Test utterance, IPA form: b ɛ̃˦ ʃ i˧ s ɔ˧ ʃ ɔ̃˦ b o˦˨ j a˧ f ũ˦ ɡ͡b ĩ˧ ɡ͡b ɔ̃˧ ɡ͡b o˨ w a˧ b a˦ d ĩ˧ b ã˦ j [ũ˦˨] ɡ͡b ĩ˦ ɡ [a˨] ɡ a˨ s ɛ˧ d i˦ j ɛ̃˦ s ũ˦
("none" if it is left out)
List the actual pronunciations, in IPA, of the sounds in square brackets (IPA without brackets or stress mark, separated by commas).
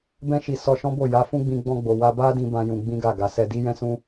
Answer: ũ˧, a˦˨